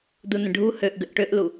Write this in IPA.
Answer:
d u n ə̃ ɖʱ u h ø ʔ ɡ ə ʔ ʈ ø ʔ l u

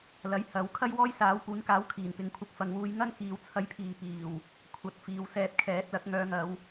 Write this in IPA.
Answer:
l ɐ˨˥ j h ɐ˨˥ w kʰ ɐ˥ j w ɔː˥ j s aː˨˥ w p uː˨˥ n k aː˨˥ w kʰ iː˨˩ n p ɪ˨˧ ŋ kʷʰ ɐ˧ k̚ f ɐ˨ ŋ w uː˨˧ j ŋ ɐ˥ n k iː˨˧ w t͡sʰ ɐ˧ j pʰ iː˨ p iː˨˩ w | kʷʰ ɐ˨˥ t̚ f iː˨˧ w s ɛː˧ t̚ kʰ ɛː˨˥ t̚ l ɐ˨˥ k̚ ŋ œː˧ ŋ ɐ˨˧ w

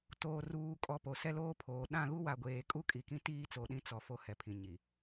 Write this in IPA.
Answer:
t oː˨ r uː˨ kʼ ɔ˨ p o˨ s ɛ˦ l oː˦ pʰ oː˨ ɗ ã˦˨ ɣ u˦ w a˨ ɡʷ eː˨ kʼ u˦ kʼ i˨ k ĩ˦ t iː˦ t͡s o˨ ɗ ĩ˨˦ t͡s ɔ˨ f o˦ h ɛ˨ pʰ ĩ˨ ɲ i˨

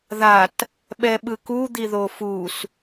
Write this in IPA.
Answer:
ð a t | ɓ ɛ ɓ ɯ k u d̪ i ð o f u s

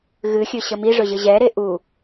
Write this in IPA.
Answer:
ɣ ɨ xʲ ɵ ɕ ə m i ʐ ɵ ʑ ɨ ʑ ɛ ɾ e ʔ u

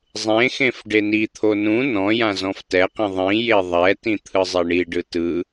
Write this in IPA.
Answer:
zˤ ẽ x ẽ f ɖ e n i t̪ʰ o n ũ n ɔ̃ j ã z ɔ̃ f t ɛ q ĩ ðˤ ĩ j e ðˤ ɛ t ĩ t̪ʰ ɯ zˤ e ɳ i ɖ ɯ t ɯ

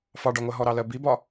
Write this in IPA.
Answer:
f ɑ ɖ ɒ ŋʷ ɜ ɦ ɔ ɾ ɑ l ɜ b i b ɒ

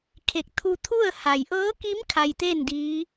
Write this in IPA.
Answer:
kʰ e˧˩ k̚ t̪ʰ u˧ t̪ʰ u˥˨ ə̯ h a˩ j ʔ ɤː˧˥ k i˧˥ m kʰ a˧ j t̪ e˥˨ n d iː˧˥

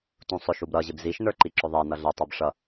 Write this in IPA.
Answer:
t ũ sˤ ʊ ʃ u b ɾ ʌ ʑ ɪ b z i ʃ n ə˞ ǃ i ǁ ʊ ðˤ ɛ n ʌ ɮ ɛ tˤ ə˞ b ʂ ʌ

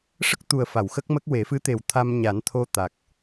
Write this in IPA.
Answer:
ʂ ə˦˥ k̚ t̪ u˨˩ ə̯ f a˨˩˨ w x ə˦˥ k̚ m ə˦˥ k̚ w e˨˩˦ f ɨ˧˥ t̪ e˨˩ w t̪ʰ a˧ m ɲ a˨˩˦ n t̪ʰ o˧ t̪ a˨˩ k̚

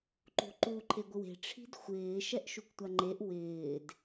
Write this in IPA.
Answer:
ǃ ṳ ǃ u ǃʰ e ɡʷ ɪ w e̤ ʈ͡ʂʰ i̤ d xʷ ɪː ʃ ɛ ʔ ʃ u k tʷ a ŋ͡ǃ e ʔ w ɪː d

